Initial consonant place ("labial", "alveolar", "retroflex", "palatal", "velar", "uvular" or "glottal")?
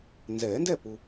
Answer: alveolar